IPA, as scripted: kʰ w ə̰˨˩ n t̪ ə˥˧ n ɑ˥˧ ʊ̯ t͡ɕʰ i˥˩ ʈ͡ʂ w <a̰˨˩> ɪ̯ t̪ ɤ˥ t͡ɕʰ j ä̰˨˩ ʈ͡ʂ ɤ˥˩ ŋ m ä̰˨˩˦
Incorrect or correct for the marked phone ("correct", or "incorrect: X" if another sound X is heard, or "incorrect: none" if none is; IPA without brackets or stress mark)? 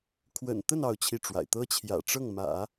correct